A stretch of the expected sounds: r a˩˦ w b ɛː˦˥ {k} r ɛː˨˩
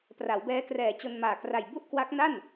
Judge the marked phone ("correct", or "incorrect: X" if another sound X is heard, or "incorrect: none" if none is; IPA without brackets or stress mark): correct